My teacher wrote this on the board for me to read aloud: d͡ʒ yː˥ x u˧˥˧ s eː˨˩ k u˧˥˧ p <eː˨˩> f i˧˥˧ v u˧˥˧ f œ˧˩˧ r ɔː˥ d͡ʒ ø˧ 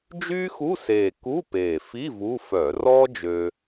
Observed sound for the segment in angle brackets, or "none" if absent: eː˨˩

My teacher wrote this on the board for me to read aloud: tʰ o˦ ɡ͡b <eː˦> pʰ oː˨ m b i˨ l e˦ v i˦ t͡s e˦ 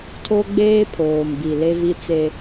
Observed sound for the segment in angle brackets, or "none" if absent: eː˦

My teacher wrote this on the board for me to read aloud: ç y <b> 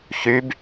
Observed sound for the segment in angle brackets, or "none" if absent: b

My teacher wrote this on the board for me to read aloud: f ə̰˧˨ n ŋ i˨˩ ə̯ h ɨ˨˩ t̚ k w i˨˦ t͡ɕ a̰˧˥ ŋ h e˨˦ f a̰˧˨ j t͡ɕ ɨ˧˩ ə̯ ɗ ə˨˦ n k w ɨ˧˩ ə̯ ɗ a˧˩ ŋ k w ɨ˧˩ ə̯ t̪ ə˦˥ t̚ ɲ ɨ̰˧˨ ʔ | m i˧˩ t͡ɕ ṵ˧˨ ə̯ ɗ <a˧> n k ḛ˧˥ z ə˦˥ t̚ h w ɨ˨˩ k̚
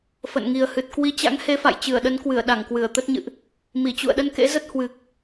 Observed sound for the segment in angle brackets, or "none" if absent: ə˧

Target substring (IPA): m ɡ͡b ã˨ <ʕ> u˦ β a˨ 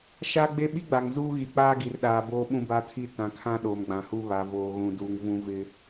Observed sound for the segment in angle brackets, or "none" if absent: h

